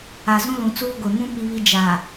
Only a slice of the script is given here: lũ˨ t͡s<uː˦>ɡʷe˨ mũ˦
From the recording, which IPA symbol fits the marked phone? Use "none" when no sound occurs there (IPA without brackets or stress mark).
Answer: uː˦